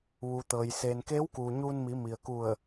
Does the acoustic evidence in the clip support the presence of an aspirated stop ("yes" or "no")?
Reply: no